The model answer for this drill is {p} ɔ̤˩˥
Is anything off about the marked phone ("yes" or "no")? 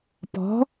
no